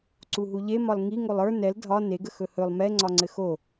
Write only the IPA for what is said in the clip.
ǀ u ɦ u ʎ e m ɒ l ŋ i ŋ o lˠ ə˞ n ɛ l dʱ ɒ n e ɡ ə x ɵ h ɵ lˠ m ɛ ŋ͡ǀ ɒ ŋ͡ǀ ɘ x o

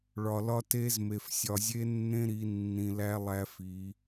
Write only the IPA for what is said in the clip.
ɭ ɒ˨ l ɒ˦ t e˦ z m e˨ f sʲ ɒ˨ zʲ e˦ nː ẽ˦ ɾ i˨˦ nː ĩ˨ l æ˦ lˠ æ˦ f i˨˦

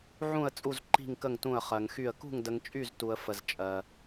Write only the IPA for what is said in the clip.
ʕ ũ˥˧ ə̯ t͡sʼ u˥˧ z ǃ i̤˥˧ ŋ k ə˥˧ ŋ t ũ˥˧ ə̯ χ ɜ˧ ŋ x y˥˧ ə̯ k ṳ˥˧ ŋ d ə˧ ŋ t͡ʃʼ y˥˧ z t u˧ ə̯ f ə˧ z t͡ʃʼ ɜ˧

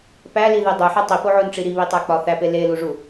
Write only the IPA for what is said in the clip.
p æ l i ð e dˤ u ħ e tˤ i p o ʕ o n ʈ͡ʂ i ɾ i β i tˤ æ k͡p ɒ θ æ p e l e l u ʐ u

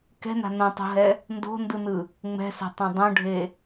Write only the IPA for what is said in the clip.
k ɛ̤ n a̤ n õ tˤ o̤ ɦ ɛ | n d o̤ n d ɯ n ɯ | ŋ͡m ɛ̤ s e̤ tˤ õ dˤ õ ɖʱ e

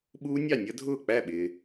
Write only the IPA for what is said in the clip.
ɓ uː˦˥ nʲ ɑ˥˩ nʲ ʌ˦˥ dʱ ʊː˥˩ k͡p æ˥˩ ɓ ɪː˨

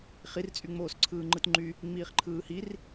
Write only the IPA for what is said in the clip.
χ i r t͡sʼ y ŋ͡m oː s ǀʰ ɯː ŋ͡ǃ ɯ t ŋ͡ǃ y | ŋ͡m iː χ ǃʰ ɯː h i r

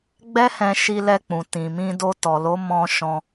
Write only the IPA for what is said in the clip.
ɡ͡b ɛ˦ h ɛ̃˧ ʃ i˧ l ɛ˧ k͡p ũ˨ t ĩ˨ m ĩ˧ d o˧ t ɔ˨ l o˨˦ m ɔ̃˧ ʃ ɔ̃˧

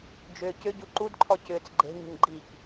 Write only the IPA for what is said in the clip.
d͡ʒ ʏː c ʏ ɟ u ǃ u d ǃʰ ɔ c ʏː t͡s ɡ͡ǃ e̤ ɲ ṳ ɲ ɡ͡ǃ i k

